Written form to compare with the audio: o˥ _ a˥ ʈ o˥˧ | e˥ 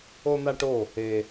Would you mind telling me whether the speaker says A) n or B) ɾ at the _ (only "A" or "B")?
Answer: A